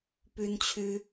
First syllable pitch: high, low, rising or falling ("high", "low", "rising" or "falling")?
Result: high